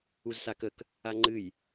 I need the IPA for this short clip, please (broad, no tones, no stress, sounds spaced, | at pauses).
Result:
u z s a k ə k | a ŋ͡ǃ ɨ j